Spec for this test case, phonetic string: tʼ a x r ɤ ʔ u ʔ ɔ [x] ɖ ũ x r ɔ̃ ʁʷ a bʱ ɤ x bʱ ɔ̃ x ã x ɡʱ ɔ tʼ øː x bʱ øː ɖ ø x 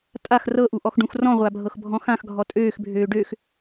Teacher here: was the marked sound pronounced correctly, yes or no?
yes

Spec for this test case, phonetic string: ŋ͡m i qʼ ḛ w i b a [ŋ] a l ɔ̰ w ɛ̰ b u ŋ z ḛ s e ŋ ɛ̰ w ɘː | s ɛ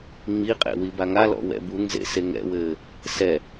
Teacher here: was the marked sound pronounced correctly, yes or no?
yes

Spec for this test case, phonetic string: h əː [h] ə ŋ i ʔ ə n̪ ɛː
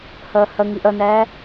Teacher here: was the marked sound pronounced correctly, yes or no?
yes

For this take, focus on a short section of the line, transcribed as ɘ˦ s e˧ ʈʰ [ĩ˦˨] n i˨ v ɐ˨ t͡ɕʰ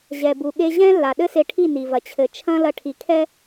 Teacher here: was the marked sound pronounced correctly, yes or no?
no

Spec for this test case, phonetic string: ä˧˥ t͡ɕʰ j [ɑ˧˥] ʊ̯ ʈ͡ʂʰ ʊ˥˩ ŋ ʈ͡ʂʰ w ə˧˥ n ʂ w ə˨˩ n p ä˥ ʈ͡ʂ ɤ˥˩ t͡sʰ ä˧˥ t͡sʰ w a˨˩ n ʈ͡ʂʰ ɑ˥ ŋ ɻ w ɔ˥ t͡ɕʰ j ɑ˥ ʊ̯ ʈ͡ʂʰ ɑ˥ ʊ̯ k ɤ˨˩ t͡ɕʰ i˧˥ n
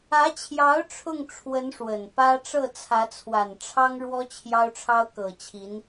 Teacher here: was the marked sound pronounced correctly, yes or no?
yes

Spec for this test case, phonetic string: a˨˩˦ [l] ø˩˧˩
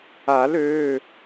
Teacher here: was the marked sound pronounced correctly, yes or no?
yes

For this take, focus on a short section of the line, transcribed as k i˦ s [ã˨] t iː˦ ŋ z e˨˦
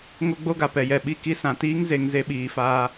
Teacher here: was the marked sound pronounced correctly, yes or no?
yes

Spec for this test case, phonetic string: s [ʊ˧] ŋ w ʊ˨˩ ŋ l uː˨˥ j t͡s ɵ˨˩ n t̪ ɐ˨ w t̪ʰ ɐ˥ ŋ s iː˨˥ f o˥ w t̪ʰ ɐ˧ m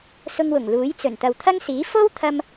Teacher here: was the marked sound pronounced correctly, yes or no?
yes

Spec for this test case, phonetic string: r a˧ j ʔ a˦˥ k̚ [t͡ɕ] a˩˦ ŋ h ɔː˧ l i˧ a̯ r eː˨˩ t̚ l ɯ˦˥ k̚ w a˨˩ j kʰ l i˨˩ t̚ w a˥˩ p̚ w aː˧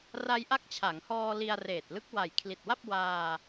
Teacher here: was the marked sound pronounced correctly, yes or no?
no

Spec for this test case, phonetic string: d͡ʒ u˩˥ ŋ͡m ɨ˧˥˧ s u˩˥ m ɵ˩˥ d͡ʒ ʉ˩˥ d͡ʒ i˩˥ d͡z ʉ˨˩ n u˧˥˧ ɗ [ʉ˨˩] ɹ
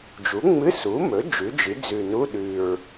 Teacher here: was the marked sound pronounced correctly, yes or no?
yes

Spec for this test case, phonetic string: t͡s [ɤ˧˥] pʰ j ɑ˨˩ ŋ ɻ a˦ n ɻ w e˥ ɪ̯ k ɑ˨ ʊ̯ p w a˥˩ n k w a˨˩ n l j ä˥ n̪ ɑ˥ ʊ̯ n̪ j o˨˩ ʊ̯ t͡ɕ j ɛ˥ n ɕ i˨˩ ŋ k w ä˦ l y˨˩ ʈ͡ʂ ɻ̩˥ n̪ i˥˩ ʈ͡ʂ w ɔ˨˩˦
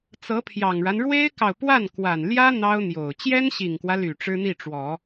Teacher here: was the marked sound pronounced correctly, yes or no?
yes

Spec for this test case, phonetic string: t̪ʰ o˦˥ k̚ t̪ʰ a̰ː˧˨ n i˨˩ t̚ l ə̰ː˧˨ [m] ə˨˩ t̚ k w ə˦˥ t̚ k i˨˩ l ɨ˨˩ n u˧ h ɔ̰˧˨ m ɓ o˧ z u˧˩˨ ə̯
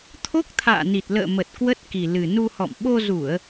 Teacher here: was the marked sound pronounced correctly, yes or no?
yes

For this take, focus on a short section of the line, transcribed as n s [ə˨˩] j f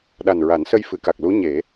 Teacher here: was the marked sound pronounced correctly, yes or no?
no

